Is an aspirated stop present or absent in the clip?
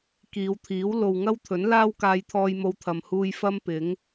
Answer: present